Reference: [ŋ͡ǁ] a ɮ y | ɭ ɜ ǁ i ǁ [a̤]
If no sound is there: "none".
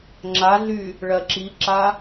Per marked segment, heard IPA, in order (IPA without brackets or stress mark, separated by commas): ŋ͡ǁ, a